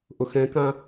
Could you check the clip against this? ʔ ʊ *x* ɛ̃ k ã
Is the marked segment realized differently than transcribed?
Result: no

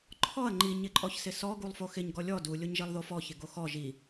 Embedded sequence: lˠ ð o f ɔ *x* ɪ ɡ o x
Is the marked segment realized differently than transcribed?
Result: yes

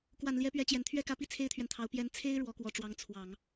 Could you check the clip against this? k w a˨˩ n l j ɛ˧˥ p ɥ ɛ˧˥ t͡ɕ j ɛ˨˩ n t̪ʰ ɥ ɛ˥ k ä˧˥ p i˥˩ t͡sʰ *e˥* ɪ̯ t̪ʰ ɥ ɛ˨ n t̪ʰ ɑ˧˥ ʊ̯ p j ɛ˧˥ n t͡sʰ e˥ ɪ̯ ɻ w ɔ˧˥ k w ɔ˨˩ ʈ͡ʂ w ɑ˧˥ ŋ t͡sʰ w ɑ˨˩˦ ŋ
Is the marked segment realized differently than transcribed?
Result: no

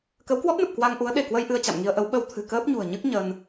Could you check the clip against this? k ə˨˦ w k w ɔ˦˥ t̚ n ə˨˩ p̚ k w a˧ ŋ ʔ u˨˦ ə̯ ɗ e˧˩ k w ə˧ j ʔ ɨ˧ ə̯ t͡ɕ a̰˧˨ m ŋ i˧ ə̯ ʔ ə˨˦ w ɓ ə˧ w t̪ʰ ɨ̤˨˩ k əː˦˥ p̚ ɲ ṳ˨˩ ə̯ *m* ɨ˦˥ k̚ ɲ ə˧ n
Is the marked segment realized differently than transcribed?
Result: yes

